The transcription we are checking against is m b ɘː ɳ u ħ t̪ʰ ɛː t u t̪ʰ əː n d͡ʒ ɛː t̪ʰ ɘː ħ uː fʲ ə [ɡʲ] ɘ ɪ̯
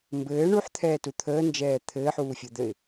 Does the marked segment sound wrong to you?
yes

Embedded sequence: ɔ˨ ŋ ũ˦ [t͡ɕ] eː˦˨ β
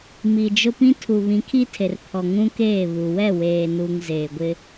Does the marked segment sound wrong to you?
yes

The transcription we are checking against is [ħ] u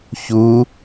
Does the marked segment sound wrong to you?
yes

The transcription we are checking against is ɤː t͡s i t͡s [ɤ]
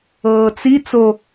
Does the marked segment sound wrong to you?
yes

